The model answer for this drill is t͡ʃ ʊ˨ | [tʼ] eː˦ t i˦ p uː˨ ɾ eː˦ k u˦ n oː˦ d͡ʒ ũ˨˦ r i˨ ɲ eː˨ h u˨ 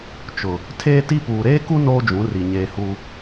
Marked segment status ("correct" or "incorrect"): incorrect